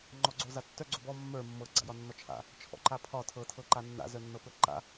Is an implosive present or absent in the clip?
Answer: absent